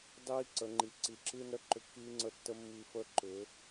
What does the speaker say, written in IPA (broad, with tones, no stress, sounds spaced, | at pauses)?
dˤ iː˦ ǀ ə˨˦ ŋ͡ǃ i˨ ǀ i˨˦ ǁ ɨː˦ n ɾ ə˦ ǃ ʏ˧ kː iː˦ ŋ͡ǀ ə˧ tː ə˦ mː i˧ f ə˦ ǃ ʏ˨˦